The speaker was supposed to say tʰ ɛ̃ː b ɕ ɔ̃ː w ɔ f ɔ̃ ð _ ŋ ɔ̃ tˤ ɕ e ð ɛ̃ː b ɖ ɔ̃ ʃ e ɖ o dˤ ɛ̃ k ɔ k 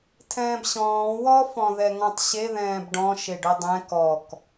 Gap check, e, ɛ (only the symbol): ɛ